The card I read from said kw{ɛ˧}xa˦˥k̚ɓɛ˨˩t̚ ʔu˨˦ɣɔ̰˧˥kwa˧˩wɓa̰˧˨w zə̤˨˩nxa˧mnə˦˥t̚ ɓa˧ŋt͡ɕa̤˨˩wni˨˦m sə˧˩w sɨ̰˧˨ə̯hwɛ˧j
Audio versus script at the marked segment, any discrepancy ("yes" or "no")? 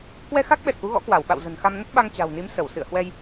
no